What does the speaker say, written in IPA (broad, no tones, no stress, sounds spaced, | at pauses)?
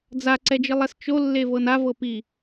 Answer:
d͡z a ǀ ɛ d͡ʒ ɯ lˠ ɛ s t͡ʃ o lː e v ɤ n a v ɤ p i